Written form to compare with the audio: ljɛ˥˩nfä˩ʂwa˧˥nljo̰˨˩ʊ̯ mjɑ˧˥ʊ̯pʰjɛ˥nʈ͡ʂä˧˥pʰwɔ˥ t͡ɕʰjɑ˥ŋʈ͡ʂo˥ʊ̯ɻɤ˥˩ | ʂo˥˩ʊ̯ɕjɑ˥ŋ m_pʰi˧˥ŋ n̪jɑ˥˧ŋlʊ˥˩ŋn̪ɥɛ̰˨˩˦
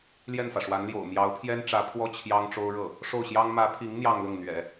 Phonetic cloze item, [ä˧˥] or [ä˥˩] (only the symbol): ä˧˥